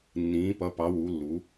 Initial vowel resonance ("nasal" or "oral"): nasal